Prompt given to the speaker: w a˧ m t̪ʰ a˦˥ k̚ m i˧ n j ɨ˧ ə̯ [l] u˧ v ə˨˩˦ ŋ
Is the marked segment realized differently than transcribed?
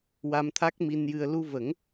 no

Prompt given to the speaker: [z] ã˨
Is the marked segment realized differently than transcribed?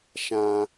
yes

